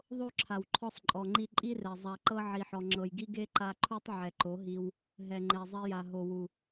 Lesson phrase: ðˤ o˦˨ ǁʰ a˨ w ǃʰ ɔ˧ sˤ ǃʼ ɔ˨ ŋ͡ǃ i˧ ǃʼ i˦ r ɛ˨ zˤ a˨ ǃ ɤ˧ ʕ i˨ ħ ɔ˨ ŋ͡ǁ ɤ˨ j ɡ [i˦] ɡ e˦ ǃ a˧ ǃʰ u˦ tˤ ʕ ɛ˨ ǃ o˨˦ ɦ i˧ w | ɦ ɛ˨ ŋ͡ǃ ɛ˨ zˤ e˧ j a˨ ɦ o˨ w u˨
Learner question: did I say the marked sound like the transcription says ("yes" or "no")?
yes